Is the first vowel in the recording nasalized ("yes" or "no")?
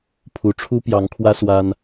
no